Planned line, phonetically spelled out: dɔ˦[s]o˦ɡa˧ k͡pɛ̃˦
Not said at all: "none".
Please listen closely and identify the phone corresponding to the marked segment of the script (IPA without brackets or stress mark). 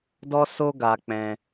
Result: s